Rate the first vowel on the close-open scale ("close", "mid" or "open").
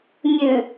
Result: close